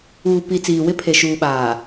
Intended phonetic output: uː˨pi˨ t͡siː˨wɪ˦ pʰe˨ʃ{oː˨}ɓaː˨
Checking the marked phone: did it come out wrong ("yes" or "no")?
yes